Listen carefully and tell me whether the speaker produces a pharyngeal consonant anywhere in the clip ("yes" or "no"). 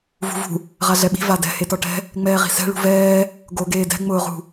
no